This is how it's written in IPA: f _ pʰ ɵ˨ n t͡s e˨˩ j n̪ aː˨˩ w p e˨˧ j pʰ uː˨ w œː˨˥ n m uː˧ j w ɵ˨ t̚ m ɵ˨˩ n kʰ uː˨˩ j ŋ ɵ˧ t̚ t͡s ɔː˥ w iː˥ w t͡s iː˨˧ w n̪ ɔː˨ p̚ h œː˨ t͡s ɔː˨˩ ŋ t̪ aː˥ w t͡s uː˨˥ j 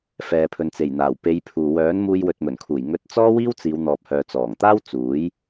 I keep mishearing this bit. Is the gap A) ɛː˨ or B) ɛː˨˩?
A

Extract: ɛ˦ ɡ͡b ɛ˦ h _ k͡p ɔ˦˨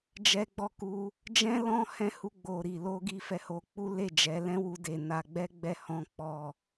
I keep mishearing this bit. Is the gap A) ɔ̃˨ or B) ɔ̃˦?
B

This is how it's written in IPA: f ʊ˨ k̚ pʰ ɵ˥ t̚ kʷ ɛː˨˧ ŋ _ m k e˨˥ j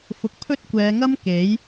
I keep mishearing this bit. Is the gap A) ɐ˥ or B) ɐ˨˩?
A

